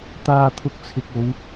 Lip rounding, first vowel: unrounded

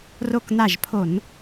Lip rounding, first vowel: rounded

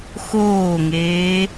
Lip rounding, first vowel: rounded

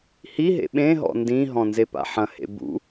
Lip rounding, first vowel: unrounded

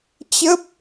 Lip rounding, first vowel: unrounded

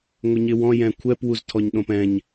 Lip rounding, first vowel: unrounded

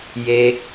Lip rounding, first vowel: unrounded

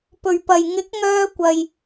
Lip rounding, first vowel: rounded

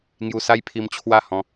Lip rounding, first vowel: rounded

